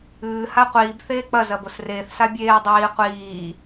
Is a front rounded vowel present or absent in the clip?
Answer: absent